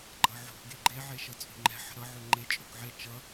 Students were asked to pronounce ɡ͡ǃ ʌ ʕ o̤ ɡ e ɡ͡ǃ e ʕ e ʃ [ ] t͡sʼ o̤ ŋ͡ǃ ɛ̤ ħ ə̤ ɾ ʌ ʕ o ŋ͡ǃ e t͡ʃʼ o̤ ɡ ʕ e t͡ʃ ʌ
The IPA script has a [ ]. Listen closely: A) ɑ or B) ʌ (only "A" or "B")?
B